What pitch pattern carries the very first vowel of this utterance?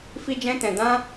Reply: high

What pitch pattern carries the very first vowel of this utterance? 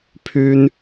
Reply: high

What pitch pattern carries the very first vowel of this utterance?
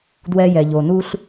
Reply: high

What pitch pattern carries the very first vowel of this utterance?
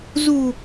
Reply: low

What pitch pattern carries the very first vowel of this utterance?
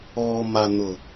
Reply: low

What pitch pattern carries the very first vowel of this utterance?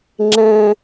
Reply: high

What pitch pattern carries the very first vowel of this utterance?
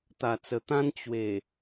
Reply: low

